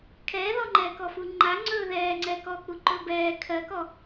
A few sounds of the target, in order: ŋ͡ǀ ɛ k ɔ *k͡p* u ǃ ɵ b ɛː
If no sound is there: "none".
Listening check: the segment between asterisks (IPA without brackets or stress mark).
k͡p